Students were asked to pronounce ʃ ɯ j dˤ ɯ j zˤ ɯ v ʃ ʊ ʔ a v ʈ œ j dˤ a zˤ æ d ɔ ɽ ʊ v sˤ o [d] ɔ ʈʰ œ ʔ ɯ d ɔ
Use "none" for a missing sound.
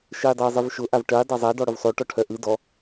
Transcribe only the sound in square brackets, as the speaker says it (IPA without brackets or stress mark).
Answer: ʈ